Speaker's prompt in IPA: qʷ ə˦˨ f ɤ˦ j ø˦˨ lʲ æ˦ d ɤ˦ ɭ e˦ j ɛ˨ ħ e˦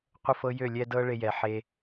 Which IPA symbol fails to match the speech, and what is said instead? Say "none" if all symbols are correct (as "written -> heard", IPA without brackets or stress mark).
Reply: æ˦ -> ɛ˦